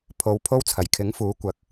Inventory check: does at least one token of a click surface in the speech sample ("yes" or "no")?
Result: no